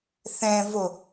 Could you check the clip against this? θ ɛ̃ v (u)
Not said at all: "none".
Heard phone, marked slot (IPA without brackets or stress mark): o